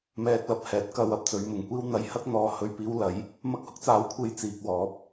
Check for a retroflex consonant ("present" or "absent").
absent